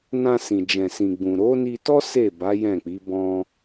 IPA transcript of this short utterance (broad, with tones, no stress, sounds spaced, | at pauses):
n ã˧ s ĩ˨ d͡ʒ ɛ̃˨ s ĩ˨ ɡ͡b ũ˨ ɾ o˨˦ n i˧ t ɔ˦ s e˦˨ b a˨˦ j ɛ̃˦˨ k͡p i˨˦ b ɔ̃˧